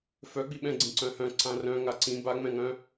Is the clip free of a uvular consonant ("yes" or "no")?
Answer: yes